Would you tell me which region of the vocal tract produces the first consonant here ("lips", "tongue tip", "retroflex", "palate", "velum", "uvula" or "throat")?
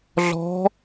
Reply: tongue tip